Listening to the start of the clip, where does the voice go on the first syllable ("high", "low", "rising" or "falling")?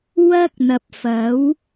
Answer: high